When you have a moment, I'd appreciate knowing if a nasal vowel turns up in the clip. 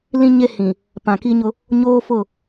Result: yes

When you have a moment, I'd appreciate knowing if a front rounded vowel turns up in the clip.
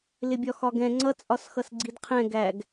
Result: no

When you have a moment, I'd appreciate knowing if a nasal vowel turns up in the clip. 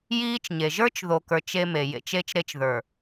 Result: no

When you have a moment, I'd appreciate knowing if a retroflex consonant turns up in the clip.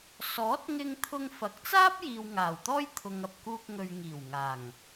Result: no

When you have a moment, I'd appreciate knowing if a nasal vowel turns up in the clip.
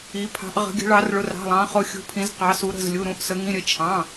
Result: yes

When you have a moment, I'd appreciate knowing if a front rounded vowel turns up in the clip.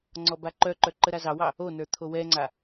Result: yes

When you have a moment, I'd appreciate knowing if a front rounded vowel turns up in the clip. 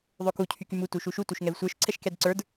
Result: yes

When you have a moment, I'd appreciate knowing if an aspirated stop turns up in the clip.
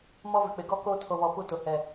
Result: yes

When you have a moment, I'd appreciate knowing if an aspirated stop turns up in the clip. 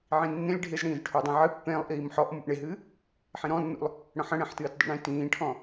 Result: yes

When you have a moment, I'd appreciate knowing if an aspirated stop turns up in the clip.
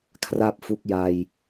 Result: yes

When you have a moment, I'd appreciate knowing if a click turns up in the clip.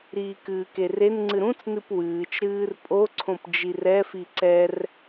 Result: yes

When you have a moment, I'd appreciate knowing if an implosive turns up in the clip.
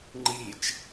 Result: no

